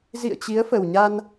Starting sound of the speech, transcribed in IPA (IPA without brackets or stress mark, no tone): z